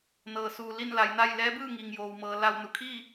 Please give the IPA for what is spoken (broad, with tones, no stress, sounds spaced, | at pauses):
n ɤː˩ s uː˩ l i˥˨ n l a˩˧ j n a˥˨ j l ɛː˧˥ b ɯː˥˨ ŋ iː˩ ŋ j oː˩ w m ɤː˩ l a˧˩ w n u˩ kʰ iː˥˨